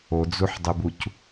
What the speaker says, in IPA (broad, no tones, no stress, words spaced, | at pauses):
od͡zuħdˤubuc